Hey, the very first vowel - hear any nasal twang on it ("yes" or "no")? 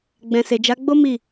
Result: yes